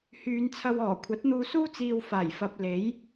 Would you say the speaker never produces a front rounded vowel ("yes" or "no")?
no